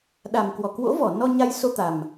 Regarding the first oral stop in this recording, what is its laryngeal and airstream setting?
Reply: implosive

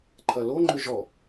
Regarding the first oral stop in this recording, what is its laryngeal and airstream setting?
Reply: click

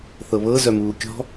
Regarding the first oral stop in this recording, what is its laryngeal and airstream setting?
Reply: plain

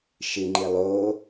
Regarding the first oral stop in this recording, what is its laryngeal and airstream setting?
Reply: click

